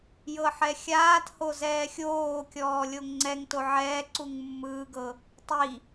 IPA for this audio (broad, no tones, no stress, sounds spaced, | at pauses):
j ɤ ħ ɛ xʲ aː t h o z ɛː xʲ oː kʲ ɔː lʲ o ŋ ŋ͡ǀ ɛ ŋ t o ʕ ɛː ǀ u ŋ mː ɯː ɡ ɤ | tˤ i